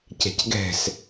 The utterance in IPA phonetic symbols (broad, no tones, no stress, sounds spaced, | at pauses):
c ɛ̤ c ɡ ɛ̤ s